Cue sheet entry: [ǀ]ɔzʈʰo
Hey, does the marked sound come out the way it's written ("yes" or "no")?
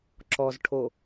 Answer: no